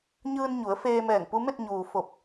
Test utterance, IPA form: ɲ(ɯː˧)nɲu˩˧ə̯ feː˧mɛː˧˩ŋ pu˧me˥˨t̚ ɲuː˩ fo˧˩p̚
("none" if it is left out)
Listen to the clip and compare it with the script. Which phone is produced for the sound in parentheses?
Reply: ɯː˧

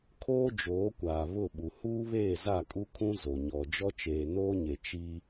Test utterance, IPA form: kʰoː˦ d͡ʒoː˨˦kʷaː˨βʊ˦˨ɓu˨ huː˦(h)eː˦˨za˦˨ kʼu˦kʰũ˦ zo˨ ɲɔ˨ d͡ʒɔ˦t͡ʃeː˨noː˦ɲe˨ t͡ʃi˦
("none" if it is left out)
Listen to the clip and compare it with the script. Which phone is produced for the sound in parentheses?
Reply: β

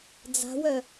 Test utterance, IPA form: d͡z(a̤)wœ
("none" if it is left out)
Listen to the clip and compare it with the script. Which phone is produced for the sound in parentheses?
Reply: a̤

